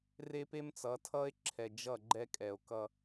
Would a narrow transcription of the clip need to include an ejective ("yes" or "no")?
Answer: yes